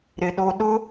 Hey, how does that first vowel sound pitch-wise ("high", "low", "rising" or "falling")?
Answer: low